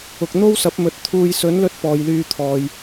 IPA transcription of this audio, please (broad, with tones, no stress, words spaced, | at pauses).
ʊ˨k̚ n̪o˥wsɐ˨˥p̚mɵ˨˥t̚ t̪ʰuː˧j sɵ˨˥nlɵ˧t̚ pɔː˨jlyː˧ t̪ʰɔː˨j